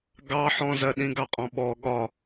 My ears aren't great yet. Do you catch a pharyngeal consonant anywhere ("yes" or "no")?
yes